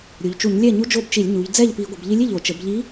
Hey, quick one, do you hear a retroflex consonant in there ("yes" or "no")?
no